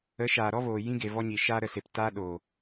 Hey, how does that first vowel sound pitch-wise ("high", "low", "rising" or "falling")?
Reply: rising